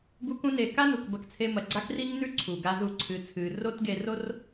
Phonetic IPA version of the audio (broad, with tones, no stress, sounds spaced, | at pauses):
b u˧ k ũ˧ n e˨ k a˦ n u˨ k b ɐ˧ k t͡sʰ e˧ m ɐ˨ ɡ͡ǀ a˦ k r i˦ ŋ n ʉ˦ ǀʰ u˨ ɡ a˧ z u˧ ǀʰ ɨ˨ t͡sʰ ɨ˨ r o˦ t ɡ e˧ r o˦ r